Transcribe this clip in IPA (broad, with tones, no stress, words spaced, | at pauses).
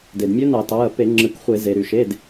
de˩dmʲø˧˥nɑ˧˩˧tɑ˩˧˩ɐ̯ pe˧˩˧ ŋ͡ǁɯ˧˩˧kχʷe˧˩˧ ze˩ɾy˩ʃe˩˧˩d